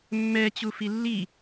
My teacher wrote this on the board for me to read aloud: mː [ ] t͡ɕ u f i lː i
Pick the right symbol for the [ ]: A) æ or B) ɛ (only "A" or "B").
B